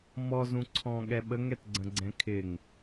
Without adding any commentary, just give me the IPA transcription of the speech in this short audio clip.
m ɔ z ũ ǀʰ ɔ̃ ɠ ɛ ɓ ə ŋ ɛ t ɡ͡ǀ ə̃ ɡ͡ǀ ɛ̃ kʰ ɪ ŋ

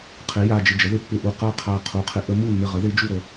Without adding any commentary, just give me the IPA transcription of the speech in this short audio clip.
qʰ ɪ˩˥ j a˧˩ d͡ʒ ɪ˧˩ d͡ʒ ə˩˥ ð ɪ˧˩ pː ɪ˧˩ ʔ u˧˩ q a˥˩ qʰ a˧˩ qʰ u˩˥ qʰ ɪ˩˥ ʔ ə˩˥ m u˥˩ nː ɪ˧˩ ʁ ə˩˥ ð ɪ˩˥ d͡ʒ u˥˩ ɾ ə˩˥

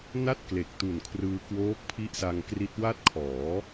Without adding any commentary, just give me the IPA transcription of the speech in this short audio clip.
n a˥˩ t̚ k l e˨˩ k̚ t u˨˩ n kʰ r ɯː˧ k w oː˦˥ k̚ pʰ i˦˥ ʔ s a˧ ŋ k r i˦˥ t̚ w a˥˩ t̚ kʰ ɔː˩˦

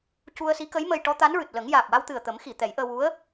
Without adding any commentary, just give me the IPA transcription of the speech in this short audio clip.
c u˧ ə̯ s i˧˥ k ə˧˥ j m ə˧ j ʈ ɔ˧˥ t̪ a˧˥ n ɹ ɨ˨˩ t̚ l ə˨˩˦ ŋ j aː˨˩ k̚ w a˧ w t̪ ɨ˨˩ ə̯ t̪ ə˨˩˦ m x i˨˩˨ t̪ ɛ˨˩˦ j ʔ əː˧ w u˧˥ ə̯

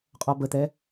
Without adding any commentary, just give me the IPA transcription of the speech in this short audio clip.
qʼ ɔ b ə t̪ ɛ

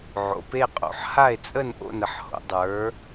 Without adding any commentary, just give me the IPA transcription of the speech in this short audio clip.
ʕ o̰˩˧ p e˥˧ qʼ o̰˩˧ ħ h a˥˧ e̯ t͡sʼ ə˥˧ n ʔ o̰˥˧ n ə˩˧ ħ h o̰˩˧ dˤ ə˞˩˧

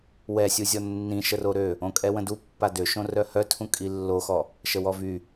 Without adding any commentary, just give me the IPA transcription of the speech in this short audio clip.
w ɛ sʲ u zʲ ɔ nː ĩ ʃ ə r o ɾ ø | õ kʼ ɛ w ə̃ d u pː a d ø ʃ õ r œ h œ tʰ ũ kʼ i lː o x ɔ | ʃ ə w ɔ v y

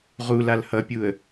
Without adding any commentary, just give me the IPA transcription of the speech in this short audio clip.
ʁ u l a l h ʌ pʲ u ə̯

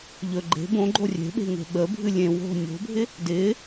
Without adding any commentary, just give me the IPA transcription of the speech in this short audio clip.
ʎ ɵ ɡ͡ǃ e̤ b õ ɡ͡ǃ o rʲ e̤ ɓ e̤ ŋ e̤ ɓ ə bʱ ɨ lʲ ẽ w o̤ nʲ o̤ bʱ ɪ | d ɪ

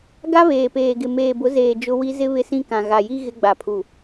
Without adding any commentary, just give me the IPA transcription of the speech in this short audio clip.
ɡ a˦ β eː˨ p eː˨ ɡ ɪ˨ m eː˨ b ʊ˨˦ z eː˨ d͡ʒ ʊ˦ w i˦ z ɪ˦ β ɪ˦ s ĩ˦ k ã˨ ɣ a˨ j i˦ ɣ ɪ˦ ɡ͡b a˨ pʰ u˨

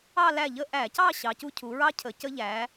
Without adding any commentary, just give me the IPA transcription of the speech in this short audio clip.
ɑ˥˧ l æ˥˩ ʎ ə˥˧ ʔ æ˧˩˧ c ɑ˥˧ ɕ ɑ˨˥ c u˥ cʰ u˩˧ ɹ ɑ˥ cʰ ə˩˧ c ə˥ ʎ æ˩˧

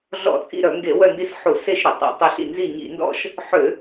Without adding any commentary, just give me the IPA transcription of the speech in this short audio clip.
ɮ ɔ̰˧˩˧ t͡sʼ ḭ˦˨ ɾ œ˧˩˧ ŋ ɡ e˧˩˧ w œ˦˨ n d i˦˨ s ħ u˧˩˧ s e˦˨ ʃ ɾ ʏ˧˩˧ tˤ ḛ˧˩˧ tˤ ʏ˦˨ ɬ ḭ˦˨ n z i˦˨ ɲ ḭ˧˩˧ n d ɔ̰˦˨ ʃ | ħ ʏ˧˩˧

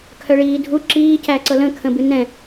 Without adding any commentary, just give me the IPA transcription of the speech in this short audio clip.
kʰ œ ɭ iː dʱ u ǁ iː c æ ǀ ɤ l ə̃ kʰ ə̃ b ɨ n ɛ̃

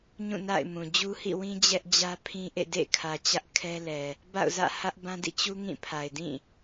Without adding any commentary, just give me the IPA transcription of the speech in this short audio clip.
ɲ ũ˦˨ n a̰˦˨ ɪ̯ m ũ˨ d͡ʑ u˦ h ḭ˦˨ w ĩ˦ d͡ʑ ɛ˦ ʔ d͡ʑ ä˦ pʰ ĩ˦ ʔ ḛ˦˨ d ḛ˦˨ kʰ ä˨ t͡ɕ ä˦ ʔ kʰ ɛ˦ l ɛ˨ | b a̰˦˨ ʊ̯ z ä̰˦˨ h ä˦ ʔ b ã˦ d ḭ˦˨ t͡ɕ u˦ ŋ ĩ˦˨ pʰ a˨ ɪ̯ d ĩ˦˨

